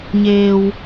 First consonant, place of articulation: palatal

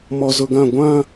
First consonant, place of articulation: labial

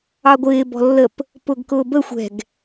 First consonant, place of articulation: velar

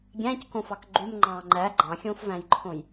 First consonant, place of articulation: velar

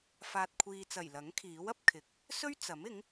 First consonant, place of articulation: labial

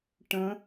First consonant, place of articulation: retroflex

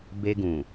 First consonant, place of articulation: labial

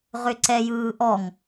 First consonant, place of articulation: uvular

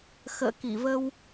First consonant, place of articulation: velar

